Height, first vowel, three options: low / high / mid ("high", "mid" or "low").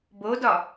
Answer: mid